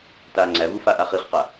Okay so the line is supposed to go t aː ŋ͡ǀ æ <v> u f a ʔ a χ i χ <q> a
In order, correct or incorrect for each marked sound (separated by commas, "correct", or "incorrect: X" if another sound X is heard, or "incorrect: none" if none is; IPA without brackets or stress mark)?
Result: correct, correct